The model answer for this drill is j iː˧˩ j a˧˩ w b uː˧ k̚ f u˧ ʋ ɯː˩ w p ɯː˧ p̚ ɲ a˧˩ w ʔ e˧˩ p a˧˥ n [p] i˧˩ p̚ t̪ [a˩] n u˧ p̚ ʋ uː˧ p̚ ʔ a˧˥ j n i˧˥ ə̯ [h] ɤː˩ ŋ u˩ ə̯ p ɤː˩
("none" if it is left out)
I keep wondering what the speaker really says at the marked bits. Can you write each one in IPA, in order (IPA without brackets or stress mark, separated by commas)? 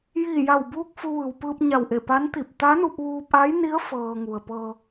t̪, a˧˥, f